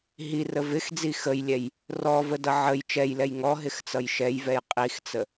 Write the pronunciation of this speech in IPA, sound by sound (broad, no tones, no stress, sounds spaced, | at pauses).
ɦ i r ə v ɪ x d͡z i x ə j lʲ ɛ j | r ɔ v ə d ʌ ʕ ə j t͡ʃ ɛ j l ɛ j ŋ ɔ ɦ ɪ x t͡s ʌ j ʃ ɛ j v ɛ j qʼ i x t͡s ə